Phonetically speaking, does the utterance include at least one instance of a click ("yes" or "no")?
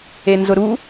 no